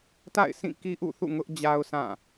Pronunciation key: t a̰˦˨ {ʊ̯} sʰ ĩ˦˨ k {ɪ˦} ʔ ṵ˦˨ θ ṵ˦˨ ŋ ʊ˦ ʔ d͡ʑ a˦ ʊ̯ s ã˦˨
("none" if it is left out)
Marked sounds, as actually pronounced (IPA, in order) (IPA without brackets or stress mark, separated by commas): ɪ̯, i˦